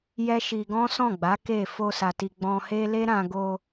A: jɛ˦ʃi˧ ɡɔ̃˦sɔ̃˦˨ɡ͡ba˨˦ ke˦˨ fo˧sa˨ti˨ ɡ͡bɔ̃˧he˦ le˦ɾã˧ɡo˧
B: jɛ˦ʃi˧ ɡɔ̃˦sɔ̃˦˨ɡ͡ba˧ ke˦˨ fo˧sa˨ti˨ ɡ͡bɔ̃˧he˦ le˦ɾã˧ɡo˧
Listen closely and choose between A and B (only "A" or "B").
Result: A